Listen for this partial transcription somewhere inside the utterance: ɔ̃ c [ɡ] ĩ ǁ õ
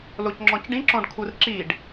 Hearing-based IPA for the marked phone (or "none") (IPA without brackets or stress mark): ɖ